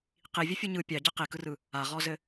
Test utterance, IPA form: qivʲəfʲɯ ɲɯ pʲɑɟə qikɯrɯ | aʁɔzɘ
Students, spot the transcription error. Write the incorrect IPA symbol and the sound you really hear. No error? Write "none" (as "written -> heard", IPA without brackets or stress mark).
none